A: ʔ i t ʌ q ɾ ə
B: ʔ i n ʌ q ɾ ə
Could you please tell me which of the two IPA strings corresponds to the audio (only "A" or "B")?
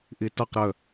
A